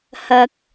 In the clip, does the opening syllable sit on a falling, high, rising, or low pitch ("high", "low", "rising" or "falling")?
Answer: low